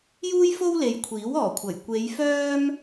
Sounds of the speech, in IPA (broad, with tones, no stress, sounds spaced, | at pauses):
j uː˥ j f o˥ w l e˨ j kʷʰ iː˨˥ w ɔː˨˩ kʷʰ ɐ˨˩ j kʷ e˨˧ j f œː˥ m